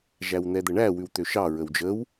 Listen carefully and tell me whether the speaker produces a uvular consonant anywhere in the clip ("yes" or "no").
no